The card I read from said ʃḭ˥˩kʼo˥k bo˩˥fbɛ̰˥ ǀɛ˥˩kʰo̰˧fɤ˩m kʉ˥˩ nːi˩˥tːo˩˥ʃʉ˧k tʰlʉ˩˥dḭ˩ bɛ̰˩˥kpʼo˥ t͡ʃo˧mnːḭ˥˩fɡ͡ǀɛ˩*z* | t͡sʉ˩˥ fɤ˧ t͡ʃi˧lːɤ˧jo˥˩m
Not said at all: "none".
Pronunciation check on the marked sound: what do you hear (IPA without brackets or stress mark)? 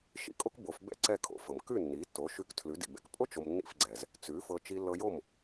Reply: z